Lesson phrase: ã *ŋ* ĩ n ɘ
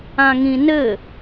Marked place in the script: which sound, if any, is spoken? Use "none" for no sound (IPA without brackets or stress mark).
ŋ